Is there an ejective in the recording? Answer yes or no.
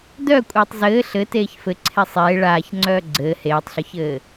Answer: yes